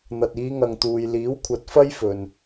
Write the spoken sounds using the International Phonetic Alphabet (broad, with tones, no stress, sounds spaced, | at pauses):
n̪ ɐ˨ t̚ iː˨˧ ŋ ɐ˨ ŋ t̪ uː˨ j l iː˨˥ w kʷʰ ɐ˨˥ t̚ f ɐ˥ j f ɵ˨ n